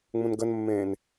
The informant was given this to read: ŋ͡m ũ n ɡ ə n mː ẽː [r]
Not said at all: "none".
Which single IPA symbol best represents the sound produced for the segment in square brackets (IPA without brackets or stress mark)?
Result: n